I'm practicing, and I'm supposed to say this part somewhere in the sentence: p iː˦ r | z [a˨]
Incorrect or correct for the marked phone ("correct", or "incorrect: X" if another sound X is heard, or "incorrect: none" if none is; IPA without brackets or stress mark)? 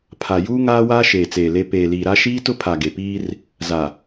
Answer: correct